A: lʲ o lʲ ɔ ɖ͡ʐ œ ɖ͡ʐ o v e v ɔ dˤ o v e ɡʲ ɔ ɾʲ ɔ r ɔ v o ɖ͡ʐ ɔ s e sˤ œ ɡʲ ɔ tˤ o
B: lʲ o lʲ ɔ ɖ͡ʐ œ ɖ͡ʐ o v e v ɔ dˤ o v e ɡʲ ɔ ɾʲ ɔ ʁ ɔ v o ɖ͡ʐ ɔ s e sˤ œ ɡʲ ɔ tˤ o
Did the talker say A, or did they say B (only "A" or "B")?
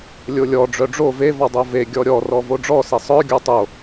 A